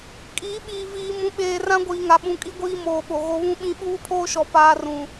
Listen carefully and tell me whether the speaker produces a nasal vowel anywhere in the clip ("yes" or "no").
yes